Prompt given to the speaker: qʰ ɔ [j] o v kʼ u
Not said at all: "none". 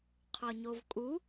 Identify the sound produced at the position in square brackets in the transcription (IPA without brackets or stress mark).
ɲ